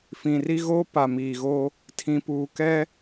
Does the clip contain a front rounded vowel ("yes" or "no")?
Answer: no